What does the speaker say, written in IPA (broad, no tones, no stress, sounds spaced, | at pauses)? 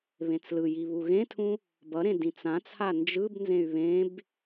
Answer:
β ẽ t͡s l ɯ j i β u ɣ ẽ tʰ ũ | b ʌ ɾ ẽ d ĩ t͡s ã t͡sʰ a n d͡ʒ ɯ b n z ẽ y̯ β ẽ b